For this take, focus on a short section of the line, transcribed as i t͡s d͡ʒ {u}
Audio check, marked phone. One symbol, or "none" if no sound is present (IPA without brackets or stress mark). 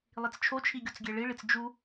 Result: u